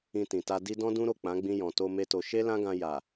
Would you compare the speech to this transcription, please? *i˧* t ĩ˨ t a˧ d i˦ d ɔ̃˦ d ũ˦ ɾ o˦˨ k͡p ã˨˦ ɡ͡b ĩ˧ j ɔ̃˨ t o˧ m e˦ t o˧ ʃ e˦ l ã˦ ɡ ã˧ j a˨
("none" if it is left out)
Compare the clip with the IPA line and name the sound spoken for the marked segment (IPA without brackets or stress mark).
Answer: ĩ˧